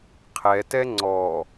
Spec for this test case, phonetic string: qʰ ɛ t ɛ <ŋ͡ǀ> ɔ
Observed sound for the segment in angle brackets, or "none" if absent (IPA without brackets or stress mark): ŋ͡ǀ